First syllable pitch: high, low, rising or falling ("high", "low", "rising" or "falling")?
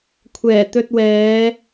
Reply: low